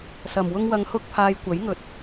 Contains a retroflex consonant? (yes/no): no